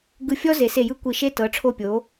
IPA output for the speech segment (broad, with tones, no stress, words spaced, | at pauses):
ɡɯ˧˩fʲɔ˥ ze˩˧ se˧˩jɯ˥˧ kʷi˧˩ʃe˥ tɤ˩˧ʈ͡ʂʰo˧˩pʲo˩˧